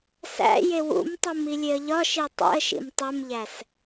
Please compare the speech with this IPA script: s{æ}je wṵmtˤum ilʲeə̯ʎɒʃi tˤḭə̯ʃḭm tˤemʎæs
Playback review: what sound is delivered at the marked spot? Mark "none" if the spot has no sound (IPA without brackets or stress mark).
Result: æ̰